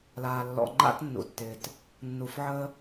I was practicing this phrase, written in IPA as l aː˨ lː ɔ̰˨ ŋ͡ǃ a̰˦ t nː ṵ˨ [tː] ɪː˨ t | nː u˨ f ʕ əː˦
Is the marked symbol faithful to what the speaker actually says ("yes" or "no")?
yes